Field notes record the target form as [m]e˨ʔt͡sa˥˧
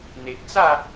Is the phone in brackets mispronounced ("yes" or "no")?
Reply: yes